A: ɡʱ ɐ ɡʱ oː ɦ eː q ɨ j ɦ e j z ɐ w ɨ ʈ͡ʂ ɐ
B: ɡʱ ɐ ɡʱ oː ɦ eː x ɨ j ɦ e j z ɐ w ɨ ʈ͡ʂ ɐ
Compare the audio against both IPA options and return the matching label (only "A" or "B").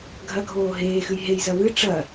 B